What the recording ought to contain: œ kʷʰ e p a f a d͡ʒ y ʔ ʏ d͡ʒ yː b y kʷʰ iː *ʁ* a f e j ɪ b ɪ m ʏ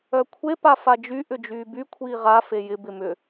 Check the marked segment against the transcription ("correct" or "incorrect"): correct